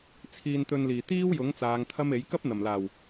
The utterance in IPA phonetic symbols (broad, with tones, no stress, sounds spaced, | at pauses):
t͡sʰ iː˧ n t̪ ɵ˧ n l iː˨˩ t̪ iː˥ w j ʊ˨˥ ŋ t͡s aː˨˧ ŋ t̪ʰ ɐ˥ m e˨˥ j k ɐ˥ p̚ n̪ ɐ˨˩ m l aː˨˩ w